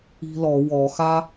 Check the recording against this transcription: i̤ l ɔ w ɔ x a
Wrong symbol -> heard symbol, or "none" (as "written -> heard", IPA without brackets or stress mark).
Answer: none